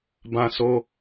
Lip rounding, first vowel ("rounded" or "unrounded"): unrounded